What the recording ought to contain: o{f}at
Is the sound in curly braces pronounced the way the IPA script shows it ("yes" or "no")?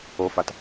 yes